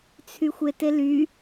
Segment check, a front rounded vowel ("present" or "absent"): present